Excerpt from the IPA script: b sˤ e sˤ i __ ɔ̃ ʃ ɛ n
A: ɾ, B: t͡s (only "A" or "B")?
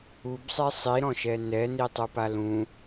A